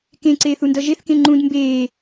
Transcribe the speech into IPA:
kẽǀeːθundʌ ʒeθkẽ ŋ͡ǃũd mbeː

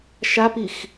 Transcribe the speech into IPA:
ʃapix

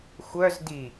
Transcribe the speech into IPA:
xʷœz di

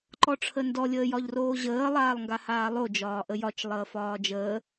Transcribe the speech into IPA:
ǃɔʈ͡ʂʰəndɔ lʲəːjɒʎroːʑəː lˠaːlˠŋɡahaːlˠo d͡ʒɒːʔəjɒt͡ʃ lˠəːfɒːd͡ʒəː

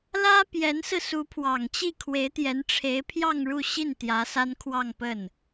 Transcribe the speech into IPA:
lä˥pjɛ˧˥nsɹ̩˧ su˧˥pʰwɑ˨˩ŋt͡ɕi˥˩ kʰwe˧˥ɪ̯t̪jɛ˧˥nʈ͡ʂʰe˧˥ɪ̯pʰjɑ˥˧ŋ ɻu˥˧ɕi˥˩n t̪jä˧˥sa˥nkʰwɑ˥˧ŋpə˥˩n

